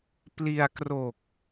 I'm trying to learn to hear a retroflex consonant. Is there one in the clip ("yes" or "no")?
no